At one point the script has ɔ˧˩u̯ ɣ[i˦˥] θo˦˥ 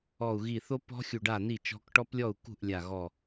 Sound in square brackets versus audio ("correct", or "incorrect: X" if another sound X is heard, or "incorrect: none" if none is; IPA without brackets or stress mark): incorrect: i˧˩